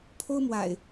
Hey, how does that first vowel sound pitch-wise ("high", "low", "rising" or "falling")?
high